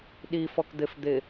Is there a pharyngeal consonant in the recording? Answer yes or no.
no